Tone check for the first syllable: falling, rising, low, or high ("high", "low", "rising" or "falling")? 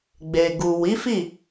low